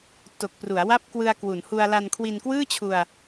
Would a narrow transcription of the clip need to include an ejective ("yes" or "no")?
no